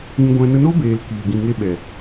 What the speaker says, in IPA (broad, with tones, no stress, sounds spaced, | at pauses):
ĩ˧ ɡʷ ɛ̃˧ n ə˧ n o˦ b eː˨ l k iː˨ ɡ ĩ˨ ŋ e˧ ɓ ɛ˨